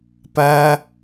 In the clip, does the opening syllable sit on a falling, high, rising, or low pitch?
high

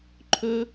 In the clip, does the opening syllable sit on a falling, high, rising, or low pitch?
high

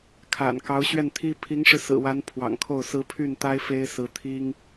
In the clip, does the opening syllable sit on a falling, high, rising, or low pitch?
low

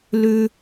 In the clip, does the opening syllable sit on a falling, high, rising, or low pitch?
high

